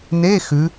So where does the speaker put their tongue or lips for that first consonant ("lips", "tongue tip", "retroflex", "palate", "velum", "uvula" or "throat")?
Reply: tongue tip